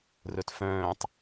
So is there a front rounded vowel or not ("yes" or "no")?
yes